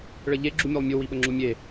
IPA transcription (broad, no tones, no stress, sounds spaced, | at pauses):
ɭ ə ʎ e ɡ͡ǁ u mʲ o lˠ mʲ u w i ɓ ə ŋ͡ǁ u mʲ e